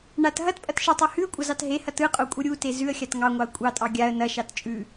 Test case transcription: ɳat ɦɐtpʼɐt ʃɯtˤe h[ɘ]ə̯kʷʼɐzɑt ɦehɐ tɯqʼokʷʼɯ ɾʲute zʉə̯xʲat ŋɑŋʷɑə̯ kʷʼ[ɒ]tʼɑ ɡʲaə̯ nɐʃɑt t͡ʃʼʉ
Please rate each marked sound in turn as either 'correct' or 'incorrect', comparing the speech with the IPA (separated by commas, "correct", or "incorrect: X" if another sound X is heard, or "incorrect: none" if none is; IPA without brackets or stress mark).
incorrect: ʉ, incorrect: ɑ